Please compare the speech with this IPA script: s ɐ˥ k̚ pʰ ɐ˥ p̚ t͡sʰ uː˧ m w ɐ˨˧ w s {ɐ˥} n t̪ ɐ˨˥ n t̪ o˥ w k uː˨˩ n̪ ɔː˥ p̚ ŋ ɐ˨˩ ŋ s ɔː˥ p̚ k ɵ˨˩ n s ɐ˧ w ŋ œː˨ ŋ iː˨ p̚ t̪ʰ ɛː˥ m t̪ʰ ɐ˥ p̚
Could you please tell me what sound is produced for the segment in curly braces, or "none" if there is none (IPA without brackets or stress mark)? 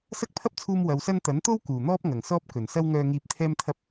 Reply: ɐ˥